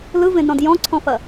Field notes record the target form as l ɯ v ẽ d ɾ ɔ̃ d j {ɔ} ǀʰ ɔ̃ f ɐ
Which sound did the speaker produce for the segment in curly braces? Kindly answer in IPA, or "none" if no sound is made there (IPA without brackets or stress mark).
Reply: ɔ̃